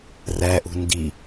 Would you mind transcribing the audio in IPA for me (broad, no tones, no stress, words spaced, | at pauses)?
ræʔṳ ndi